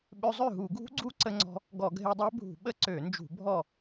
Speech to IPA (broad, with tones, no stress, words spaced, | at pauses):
ɓø˧zˤø˥˩ɦu˧˩˧ɡʱṳ˦˥ ɡ͡ǀu˦˥ǀə˧ŋ͡ǀɔ̤˧ | ɡɔ˧˩˧ɡʱe˧dˤɛ˦˥ bʱṳ˧˩˧ɓə˦˥ǀø˧˩˧nd͡ʒṳ˧˩˧ bʱɔ˥˩